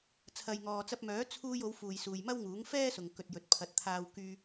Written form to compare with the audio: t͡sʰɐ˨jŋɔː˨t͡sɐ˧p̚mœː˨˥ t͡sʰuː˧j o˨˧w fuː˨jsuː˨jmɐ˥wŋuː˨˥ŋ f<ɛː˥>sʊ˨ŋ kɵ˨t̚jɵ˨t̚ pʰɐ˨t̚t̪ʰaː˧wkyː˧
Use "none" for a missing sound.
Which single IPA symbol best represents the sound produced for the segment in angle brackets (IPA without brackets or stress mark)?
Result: ɛː˥